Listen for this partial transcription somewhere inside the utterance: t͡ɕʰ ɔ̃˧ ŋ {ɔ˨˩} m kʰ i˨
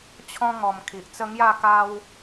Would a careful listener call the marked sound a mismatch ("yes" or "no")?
no